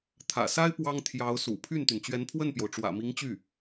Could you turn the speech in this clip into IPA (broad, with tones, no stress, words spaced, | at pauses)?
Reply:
t̪ʰä̰˨˩sa˥ɪ̯ pwɑ˥ŋt̪ʰjɑ˧˥ʊ̯sṵ˨˩ pʰy˥˩nt̪y˩n t͡ɕɥɛ˧˥npʰwə˥˩npjo˩ʊ̯ ʈ͡ʂwä̰˨˩mi˧˥ŋt͡ɕy˥˩